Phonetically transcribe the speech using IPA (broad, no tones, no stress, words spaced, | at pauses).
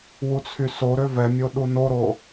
wut͡sʰysoɾø vɛmʲo ɗunoɾo